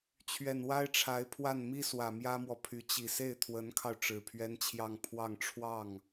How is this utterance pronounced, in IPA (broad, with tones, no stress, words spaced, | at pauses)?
t͡ɕʰɥɛ˨˩nwa˥ɪ̯ʈ͡ʂʰa˧˥ɪ̯pʰwa˥˩n mi˥swä˨˩ mjä˥mwɔ˨pʰy˧˥ t͡ɕi˨˩se˥˩ɪ̯t̪ʰwə˧˥nkʰɑ˧ʊ̯ ʈ͡ʂɻ̩˨˩pʰɥɛ˥nt͡ɕʰjɑ˥˧ŋ pʰwɑ˥˧ŋʈ͡ʂʰwɑ˥˩ŋ